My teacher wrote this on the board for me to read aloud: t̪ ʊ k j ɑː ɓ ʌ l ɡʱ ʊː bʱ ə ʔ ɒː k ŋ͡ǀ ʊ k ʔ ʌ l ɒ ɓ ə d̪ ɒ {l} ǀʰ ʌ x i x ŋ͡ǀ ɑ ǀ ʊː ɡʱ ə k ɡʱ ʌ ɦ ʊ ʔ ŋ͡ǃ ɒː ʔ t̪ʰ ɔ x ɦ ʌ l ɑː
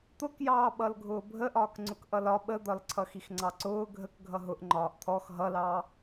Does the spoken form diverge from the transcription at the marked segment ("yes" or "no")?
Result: no